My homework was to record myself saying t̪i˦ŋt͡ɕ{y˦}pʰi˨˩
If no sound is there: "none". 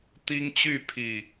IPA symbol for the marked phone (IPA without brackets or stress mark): y˥˨